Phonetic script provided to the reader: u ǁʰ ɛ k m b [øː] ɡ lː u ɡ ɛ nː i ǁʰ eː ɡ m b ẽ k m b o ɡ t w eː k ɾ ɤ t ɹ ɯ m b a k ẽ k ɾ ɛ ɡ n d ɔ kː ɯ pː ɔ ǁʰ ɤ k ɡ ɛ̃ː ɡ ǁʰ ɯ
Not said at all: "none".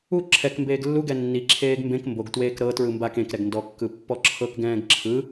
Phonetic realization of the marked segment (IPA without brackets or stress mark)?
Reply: eː